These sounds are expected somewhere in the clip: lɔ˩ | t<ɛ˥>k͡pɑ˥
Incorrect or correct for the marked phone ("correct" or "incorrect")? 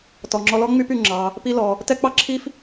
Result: correct